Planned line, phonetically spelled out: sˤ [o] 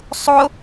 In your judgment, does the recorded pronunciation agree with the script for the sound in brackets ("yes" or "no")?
yes